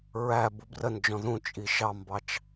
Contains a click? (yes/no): no